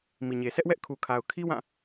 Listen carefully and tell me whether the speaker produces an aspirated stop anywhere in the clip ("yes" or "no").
yes